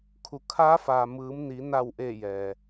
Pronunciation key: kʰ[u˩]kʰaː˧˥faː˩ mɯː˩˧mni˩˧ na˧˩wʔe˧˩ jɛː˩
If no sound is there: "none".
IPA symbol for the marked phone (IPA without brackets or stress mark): u˩